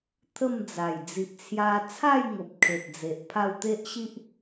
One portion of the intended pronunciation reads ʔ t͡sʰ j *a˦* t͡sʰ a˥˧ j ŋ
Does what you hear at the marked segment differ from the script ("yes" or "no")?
yes